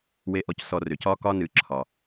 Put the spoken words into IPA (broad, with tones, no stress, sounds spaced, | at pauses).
w e˧ ʔ ɔ˧ c s ɔ˧ r ʏ˨ c ɒː˦ k ɒː˦ n ɨː˨˦ ǁʰ ɒ˨